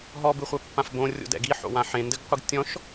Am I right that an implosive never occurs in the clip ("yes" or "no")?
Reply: yes